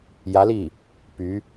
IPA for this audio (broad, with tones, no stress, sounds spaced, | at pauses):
j ä˧˥ l i˥˩ | p y˧˥